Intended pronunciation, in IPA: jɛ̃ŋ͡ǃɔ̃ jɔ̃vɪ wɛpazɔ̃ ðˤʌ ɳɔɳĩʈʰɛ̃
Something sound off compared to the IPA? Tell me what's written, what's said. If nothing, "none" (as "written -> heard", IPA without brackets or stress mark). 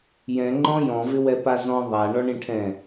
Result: ʌ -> a